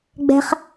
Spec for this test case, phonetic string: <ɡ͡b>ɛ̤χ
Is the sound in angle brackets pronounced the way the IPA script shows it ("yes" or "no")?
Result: yes